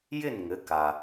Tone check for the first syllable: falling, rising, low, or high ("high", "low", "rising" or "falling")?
falling